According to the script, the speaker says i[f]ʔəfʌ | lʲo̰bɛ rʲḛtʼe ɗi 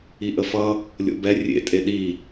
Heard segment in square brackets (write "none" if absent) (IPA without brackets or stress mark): none